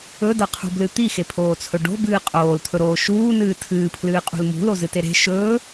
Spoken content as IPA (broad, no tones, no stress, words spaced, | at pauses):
ɵdɐqʰṳblɨ t̪ixepʰoːt͡sʰɵ ɖo̤bɨː qʼoːlt̪ʰɵɾoː ʃuːnɨː tʰɨːpʰlɨːqʼṳl mṳlozɨte ɾe̤ ʃɵː